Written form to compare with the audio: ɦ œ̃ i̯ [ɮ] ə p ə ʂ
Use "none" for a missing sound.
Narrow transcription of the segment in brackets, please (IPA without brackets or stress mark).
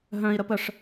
ɾ